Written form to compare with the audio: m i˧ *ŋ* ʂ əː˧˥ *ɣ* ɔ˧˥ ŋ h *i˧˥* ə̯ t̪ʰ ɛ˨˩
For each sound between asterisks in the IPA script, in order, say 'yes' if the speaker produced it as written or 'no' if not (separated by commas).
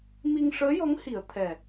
yes, no, no